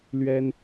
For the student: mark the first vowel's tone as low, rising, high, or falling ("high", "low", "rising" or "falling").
high